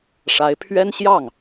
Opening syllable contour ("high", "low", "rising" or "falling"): rising